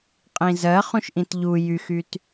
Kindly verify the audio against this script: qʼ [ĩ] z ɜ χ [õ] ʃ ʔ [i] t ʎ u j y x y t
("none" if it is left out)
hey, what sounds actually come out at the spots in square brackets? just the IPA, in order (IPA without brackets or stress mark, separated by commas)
ĩ, ũ, ĩ